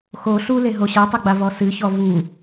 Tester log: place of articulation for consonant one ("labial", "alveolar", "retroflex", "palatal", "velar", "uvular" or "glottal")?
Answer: velar